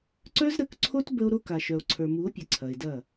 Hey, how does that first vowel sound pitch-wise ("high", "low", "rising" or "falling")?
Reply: high